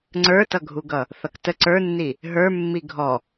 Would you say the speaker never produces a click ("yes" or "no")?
no